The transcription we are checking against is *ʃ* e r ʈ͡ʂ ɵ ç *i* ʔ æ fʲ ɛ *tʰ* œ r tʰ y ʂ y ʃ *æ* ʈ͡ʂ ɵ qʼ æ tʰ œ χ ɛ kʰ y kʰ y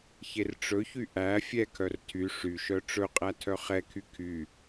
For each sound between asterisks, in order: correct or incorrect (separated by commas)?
incorrect, incorrect, incorrect, incorrect